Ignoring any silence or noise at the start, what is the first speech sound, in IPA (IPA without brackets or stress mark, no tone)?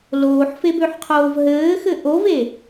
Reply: l